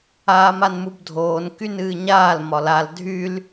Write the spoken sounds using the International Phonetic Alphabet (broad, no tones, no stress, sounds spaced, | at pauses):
aː m a n m u b dʱ oː n k y n ɨː ɲ aː l m ɒ l a l dʱ y l